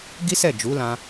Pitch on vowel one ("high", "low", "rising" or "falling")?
high